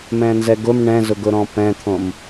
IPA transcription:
m ɛ̃ n z ɛ ɡ ʊ m ɳ ɛ̃ z ʊ ɡ ʊ ɾ ɔ̃ p ɛ̃ t̪ʰ õ m

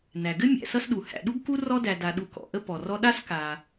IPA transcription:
n æ˩ ɡ ɘ˥ mʲ æ̰˨ s ʌ˦ s ɗ u˩ h æ̰˨ ɗ u˥ ɡ k u˥ r ɔ˥ d æ˨ d a˨ ɗ u˨ k ɔ̰˩ ʔ ə˦ p ɔ˩ r ɔ˦ ɗ a˥ s k a˨

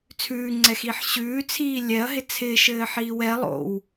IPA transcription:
t͡sʰ ʉː ŋ͡ǀ ɛ x iː ħ ɕ ʉː t͡sʰ iː lʲ ɛ ɐ̯ ɦ ɪ t͡sʰ ɪː ʃ ɘː ħ iː w ɛ lˠ o̰ w

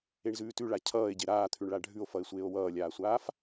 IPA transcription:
e ɳ z ʉː t ʉ ɭ a cʰ ʌː e̯ ɟ e ɾ aː t̪ʰ ʉ ɳ ɭ a ɖʱ ʉ o̯ f ʌ e̯ sʷ eː o̯ w ʌː lʲ aː sʷ aː f

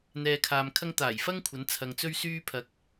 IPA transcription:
n̪ ɛː˨ kʰ aː˨ m kʰ ɐ˧ ŋ t̪ aː˨˩ j f ɐ˥ ŋ kʷʰ ɐ˨˧ n t͡sʰ ɐ˨ ŋ t͡s ɵ˧ ɥ s yː˧ pʰ ɐ˨ k̚

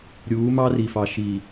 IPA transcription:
ɾʲ uː˨˦ m ɑ˦ r i˨ f ɑ˨ ʃ i˨

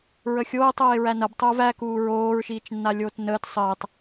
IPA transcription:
ɹ ə xʲ oː tˤ oː ɪ̯ ɹ æ n ɐ b tˤ o v æ k uː ɹ oː ɹ ʃ iː t͡ʃ nː a lʲ oː t n əː t sˤ əː tˤ

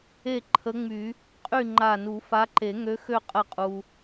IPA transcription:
e˥˨ ǃʰ ə˧˥ ŋ͡m y˨˩˦ | qʼ y˥˨ ŋ͡ǃ a˧˩ n u˨˩˦ f a˧˥ ǃ e˨˩˦ ŋ ø˧˥ x ø˧˩ qʼ ə˨˩˦ qʼ u˩

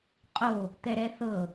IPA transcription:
qʼ o | t̪ ɛ ɾ ɛ θ ɤ

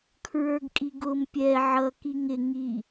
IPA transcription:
kʰ ɹ ə˞ ɡ kʼ i ɡ ʊ m pʲ ɛ ʕ ʌ k i ŋ ɪ ŋ i

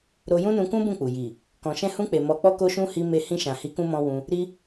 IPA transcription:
ɾ o˧ j ũ˦ n ũ˧ k ũ˦ b ũ˦˨ k͡p u˨ j i˨ | k ɔ̃˨ ʃ ɛ̃˧ h ũ˧ k͡p e˨ m ɔ˧ k͡p ɔ˦ k o˦ ʃ ũ˦ h i˧ m e˧ h ĩ˧ ʃ ã˨ h i˨˦ k ũ˧ m ɔ̃˧ w ũ˧ | ɾ i˦

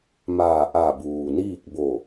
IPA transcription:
m aː˧˩ ʔ a˧˩ b uː˩ n iː˥˨ k̚ b o˧˩

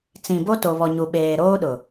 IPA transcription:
t͡s ĩ˨ b o˦ t o˨ β ɔ˨ ɲ u˨ ɓ eː˨ ɾ oː˦ ɗ ʊ˨

